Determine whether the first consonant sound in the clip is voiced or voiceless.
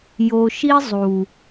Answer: voiced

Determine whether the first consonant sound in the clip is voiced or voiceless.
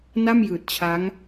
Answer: voiced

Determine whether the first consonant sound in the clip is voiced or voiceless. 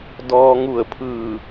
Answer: voiced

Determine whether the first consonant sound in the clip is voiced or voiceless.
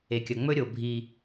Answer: voiceless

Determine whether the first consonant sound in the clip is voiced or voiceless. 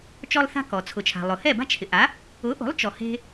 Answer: voiceless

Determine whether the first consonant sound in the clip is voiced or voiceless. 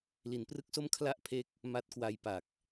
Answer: voiced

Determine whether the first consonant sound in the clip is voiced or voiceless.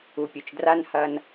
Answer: voiceless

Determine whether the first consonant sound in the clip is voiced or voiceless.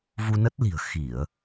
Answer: voiced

